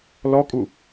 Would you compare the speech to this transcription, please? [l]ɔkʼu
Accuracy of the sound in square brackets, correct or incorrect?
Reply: correct